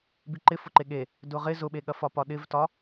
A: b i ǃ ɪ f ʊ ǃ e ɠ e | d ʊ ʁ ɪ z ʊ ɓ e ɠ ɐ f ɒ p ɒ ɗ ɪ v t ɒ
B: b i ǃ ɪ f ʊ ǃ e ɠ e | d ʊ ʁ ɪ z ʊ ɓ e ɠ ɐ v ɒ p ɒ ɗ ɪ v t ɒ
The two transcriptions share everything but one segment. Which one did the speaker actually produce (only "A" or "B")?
A